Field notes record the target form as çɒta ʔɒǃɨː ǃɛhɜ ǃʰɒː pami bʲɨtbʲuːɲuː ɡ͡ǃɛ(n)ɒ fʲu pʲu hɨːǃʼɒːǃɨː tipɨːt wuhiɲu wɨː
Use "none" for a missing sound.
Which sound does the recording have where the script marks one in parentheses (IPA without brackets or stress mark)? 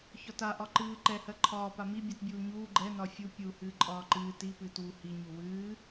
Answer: n